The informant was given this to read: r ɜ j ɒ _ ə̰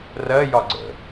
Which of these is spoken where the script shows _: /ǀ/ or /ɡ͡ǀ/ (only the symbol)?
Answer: ɡ͡ǀ